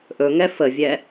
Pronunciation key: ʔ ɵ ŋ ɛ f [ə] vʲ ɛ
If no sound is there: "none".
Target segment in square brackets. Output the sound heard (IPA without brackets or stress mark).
ə